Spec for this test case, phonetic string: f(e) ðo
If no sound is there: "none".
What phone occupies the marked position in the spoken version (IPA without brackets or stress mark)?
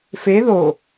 e